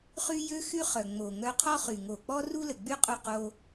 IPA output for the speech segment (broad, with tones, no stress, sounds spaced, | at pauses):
χ y˦ j ø˦ x y˦ χ œ˨ ŋ͡m o˨ ŋ œ˧ qʰ ɔ˦ χ y˨ ŋ o˨ k͡p ɔ˦ r u˦ l ə˨ ɡ͡b y˦ qʼ u˧ q o˧